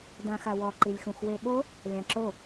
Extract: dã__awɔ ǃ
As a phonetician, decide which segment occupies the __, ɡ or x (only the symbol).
x